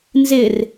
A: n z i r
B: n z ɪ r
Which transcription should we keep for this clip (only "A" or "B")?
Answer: B